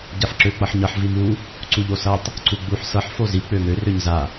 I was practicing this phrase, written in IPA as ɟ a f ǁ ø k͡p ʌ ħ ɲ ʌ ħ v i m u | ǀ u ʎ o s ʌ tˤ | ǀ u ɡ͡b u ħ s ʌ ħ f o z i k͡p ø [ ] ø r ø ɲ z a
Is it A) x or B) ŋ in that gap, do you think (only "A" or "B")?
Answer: B